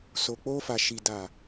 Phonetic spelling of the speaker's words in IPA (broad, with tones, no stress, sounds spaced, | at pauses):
s o˨ k͡p o˧ f a˨ ʃ i˨ d a˨